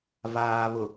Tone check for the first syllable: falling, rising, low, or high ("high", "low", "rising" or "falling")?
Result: low